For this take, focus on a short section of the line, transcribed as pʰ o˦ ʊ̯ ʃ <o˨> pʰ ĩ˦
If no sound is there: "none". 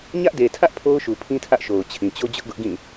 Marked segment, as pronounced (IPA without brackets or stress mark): u˨